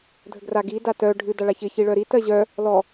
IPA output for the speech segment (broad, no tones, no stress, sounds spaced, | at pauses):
dʱ ə ɡ r a ɡ i d a t œ ɖʱ ɨ d a ɭ a ç ɪ ç i ɭ œ ɾ i t ɜ ʑ œ | l ɔ